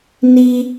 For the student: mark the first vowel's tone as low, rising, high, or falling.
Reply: high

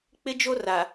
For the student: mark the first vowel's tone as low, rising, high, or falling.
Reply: high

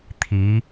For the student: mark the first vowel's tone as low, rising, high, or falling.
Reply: rising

